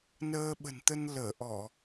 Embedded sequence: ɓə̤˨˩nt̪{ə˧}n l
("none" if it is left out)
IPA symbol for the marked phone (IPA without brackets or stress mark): ə˧